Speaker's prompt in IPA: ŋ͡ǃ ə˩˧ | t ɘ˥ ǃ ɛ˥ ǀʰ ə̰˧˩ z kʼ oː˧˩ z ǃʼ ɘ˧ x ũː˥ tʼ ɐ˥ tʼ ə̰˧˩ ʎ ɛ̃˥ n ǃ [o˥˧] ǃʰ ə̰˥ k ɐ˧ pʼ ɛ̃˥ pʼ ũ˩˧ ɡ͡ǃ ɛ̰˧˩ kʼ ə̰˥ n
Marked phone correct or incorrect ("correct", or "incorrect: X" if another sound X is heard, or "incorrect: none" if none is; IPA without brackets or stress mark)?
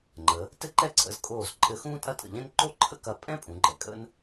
correct